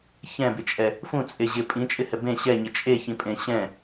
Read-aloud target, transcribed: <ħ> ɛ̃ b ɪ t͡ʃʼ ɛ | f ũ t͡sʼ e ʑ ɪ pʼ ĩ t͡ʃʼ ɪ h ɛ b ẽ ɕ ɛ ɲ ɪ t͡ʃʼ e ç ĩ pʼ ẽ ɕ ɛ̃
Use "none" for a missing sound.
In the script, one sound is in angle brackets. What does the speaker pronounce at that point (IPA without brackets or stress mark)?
ç